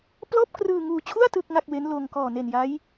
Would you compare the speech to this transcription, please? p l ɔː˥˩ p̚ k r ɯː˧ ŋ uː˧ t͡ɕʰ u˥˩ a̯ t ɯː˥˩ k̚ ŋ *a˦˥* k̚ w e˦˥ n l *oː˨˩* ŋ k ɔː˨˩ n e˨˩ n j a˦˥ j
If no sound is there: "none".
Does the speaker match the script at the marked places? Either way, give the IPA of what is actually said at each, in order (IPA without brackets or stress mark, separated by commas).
a˥˩, oː˧